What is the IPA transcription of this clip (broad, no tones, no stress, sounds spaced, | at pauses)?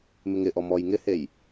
m ɪ ŋ ɪ ʔ ɔ m ɔ j ŋ ɪ h e j